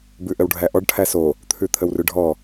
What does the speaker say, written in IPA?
b ʉ ʔ ə w ɖʱ æ ʔ ɔ ɖ ʈʰ æ s o | t̪ʰ ʉ t̪ʰ ə w r ʉ ɖʱ ɔ

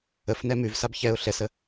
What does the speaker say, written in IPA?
ə f n ɛ m ʉ v s a b ç ɛ ʊ̯ ɬ ɛ s ə

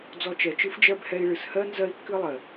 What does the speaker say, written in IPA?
d͡z ɔ˧ t͡ʃ ɛ˨ t͡ʃ ɨ˦ f d͡ʒ ɜ˦ b h ɛ˧ i̯ ɭ ɨ˨ s h ɜ˦ n z ɜ˦ i̯ kː ɨ˦ lˠ ɜ˨

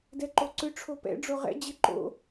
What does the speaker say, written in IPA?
d ɛ ǃ o ǀ ʏ ʈ͡ʂʰ o p ɛ̰ ɖ͡ʐ o ʁ ɛ̰ d͡ʑ ɪ ǃ o̰

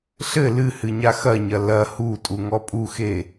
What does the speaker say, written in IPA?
ɬ ɘ l ɨ h ɨ ɲ a x ɐ ɲ ɐ l ɐ h u tʼ u ŋ ɔ pʼ u x e

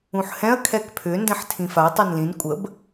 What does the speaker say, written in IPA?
ũ ħ h ɛ̃ ɐ̯ kʰ ɛ k pʰ ʏ n d ɛ̃ ħ tʰ ĩ f a ɐ̯ tˤ œ n l ĩ n kʷʼ ə b

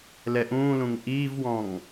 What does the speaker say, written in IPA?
l ɛ ʔ ũː l ũ ŋ ʔ iː v w ɔ̃ ŋ

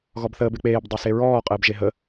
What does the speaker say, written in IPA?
ɣ ɔ b θ əː b e k͡p eː b dˤ e s e ɹ ɔː qʼ əː b ʒ e ɦ ə

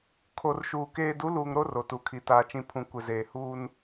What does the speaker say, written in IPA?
kʰ o˨ r ʃ uː˨ k eː˨ d u˨˦ l uː˨ ŋ ɾ o˦ r o˨ t u˨ kʰ i˨ t aː˨ t͡ʃ ĩ˨ pʰ ũ˨ kʷ ɪ˨ z eː˨ h uː˦ n

